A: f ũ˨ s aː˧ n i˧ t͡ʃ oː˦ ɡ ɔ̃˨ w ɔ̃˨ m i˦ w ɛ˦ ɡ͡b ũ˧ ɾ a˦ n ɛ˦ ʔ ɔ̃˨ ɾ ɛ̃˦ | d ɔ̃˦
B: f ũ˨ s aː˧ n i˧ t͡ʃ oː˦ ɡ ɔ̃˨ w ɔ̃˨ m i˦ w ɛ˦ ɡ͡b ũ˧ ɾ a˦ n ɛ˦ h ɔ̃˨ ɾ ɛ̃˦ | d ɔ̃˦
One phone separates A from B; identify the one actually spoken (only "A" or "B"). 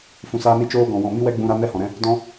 B